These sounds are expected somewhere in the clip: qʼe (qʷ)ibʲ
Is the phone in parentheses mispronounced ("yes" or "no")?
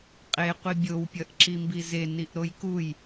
no